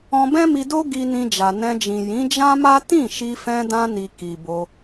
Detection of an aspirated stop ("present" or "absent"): absent